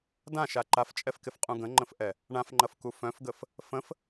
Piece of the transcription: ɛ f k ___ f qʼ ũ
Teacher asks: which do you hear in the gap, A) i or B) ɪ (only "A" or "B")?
B